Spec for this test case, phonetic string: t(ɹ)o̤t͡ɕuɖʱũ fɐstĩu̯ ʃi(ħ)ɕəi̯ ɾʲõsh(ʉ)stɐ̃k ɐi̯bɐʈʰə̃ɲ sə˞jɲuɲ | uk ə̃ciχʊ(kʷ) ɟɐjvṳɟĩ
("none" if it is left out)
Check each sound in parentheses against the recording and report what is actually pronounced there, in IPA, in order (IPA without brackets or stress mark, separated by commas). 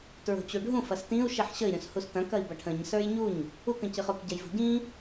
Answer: ɹ, ħ, u, k